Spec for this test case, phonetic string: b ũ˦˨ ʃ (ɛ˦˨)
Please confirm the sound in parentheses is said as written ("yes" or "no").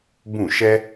no